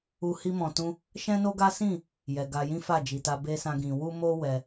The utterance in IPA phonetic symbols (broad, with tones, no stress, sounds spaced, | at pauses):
u˧ h i˧ m ɔ̃˨ t ũ˧ | ʃ ɛ̃˦ n o˦ ɡ a˦ s ĩ˦˨ | j ɛ˨ ɡ a˧ j ĩ˦ f a˦˨ d͡ʒ i˨ t a˧ b e˦ s ã˦ ɡ ĩ˧ w u˦ m o˦ w ɛ˧